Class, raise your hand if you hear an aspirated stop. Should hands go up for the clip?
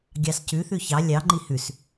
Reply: no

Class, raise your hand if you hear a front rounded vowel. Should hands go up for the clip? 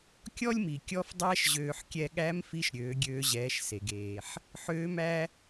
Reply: yes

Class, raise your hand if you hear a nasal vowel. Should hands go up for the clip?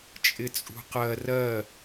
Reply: no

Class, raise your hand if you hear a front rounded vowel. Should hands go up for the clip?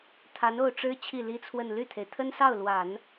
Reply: yes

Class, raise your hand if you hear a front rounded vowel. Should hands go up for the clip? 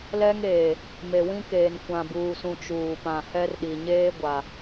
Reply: no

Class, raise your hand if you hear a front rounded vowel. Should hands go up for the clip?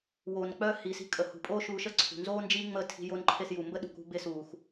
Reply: yes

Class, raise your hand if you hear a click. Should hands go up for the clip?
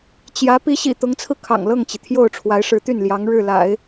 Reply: no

